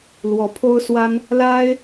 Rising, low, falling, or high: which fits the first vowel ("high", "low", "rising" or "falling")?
rising